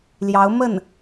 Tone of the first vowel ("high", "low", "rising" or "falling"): rising